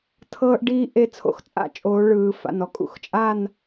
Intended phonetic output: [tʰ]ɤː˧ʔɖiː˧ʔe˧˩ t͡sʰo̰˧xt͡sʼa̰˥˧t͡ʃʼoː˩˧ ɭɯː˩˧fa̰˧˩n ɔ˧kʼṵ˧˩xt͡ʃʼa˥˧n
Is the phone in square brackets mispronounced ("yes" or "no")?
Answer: no